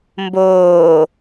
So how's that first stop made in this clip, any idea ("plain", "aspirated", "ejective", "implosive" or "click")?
plain